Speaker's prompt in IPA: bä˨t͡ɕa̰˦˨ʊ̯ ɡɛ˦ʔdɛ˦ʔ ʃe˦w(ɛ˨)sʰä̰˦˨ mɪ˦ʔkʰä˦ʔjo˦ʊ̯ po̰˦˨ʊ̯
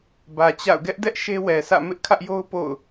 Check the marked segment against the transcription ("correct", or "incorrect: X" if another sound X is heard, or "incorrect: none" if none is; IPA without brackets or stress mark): correct